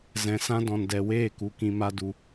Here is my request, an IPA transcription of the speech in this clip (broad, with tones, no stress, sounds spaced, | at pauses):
z ɛ̃˨ s ã˦ d ɔ̃˨ n d ɛ˨ w eː˦˨ k u˨ k ĩ˧ m a˦ d u˧